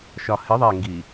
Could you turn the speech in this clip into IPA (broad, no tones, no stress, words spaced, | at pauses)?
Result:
ʃɒ hɪ ðˤɛŋɡi